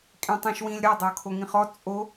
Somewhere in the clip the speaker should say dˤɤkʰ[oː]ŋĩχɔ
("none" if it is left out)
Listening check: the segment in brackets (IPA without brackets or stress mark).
o